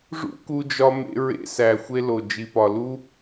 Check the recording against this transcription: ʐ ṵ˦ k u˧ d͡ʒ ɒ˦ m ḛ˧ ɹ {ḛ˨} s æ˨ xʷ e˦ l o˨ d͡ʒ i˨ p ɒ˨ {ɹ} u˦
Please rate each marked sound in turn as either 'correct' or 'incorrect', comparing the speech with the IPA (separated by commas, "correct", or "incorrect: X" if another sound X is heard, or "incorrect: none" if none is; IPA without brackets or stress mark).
incorrect: ḛ˧, incorrect: l